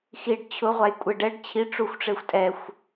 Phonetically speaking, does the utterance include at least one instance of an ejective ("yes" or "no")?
yes